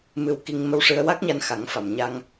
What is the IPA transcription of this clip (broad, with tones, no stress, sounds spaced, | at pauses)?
m ɨ˧ w k i˧ ŋ m ə˧ w ʂ ɨ˧ ə̯ w a˦˥ k̚ ɲ a˧ n x a˨˩˦ ŋ f a˨˩˨ m ɲ a˧ ŋ